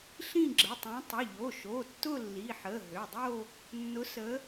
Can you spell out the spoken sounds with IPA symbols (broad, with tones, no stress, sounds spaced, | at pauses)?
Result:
ɬ ĩ˥˧ ɡ͡ǁ ə˩˧˩ tˤ ũ˨˦ tˤ ʊ˩˧˩ ʎ o˩˧˩ ʃ o˩˧˩ tː ʊ˥˧ lː i˩˧˩ ħ ə˩˧˩ ɦ ø˩˧˩ dˤ o˥˧ | nː ʊ˨˦ s ə˨˦